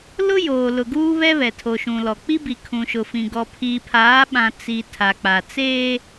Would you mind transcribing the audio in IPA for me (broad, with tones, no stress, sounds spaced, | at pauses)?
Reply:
l ʊ˦ j oː˨ l ʊ˨ ɡ uː˦ β ɛ˦ β ɛ˨ tʰ o˨ ʃ ũ˨ l ɔ˨ k͡p i˦ b i˨ kʰ ũ˨ ʃ ʊ˨ f ĩ˨ ɡ ɔ˨ pʰ iː˨ pʰ aː˨˦ ɓ ã˨ t͡s i˨ tʰ a˨ k͡p a˨ t͡s eː˦